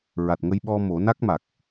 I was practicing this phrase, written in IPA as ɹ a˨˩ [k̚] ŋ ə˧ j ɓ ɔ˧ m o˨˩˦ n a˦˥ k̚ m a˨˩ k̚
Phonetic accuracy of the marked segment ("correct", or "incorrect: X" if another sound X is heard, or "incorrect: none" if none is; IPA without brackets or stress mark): incorrect: t̚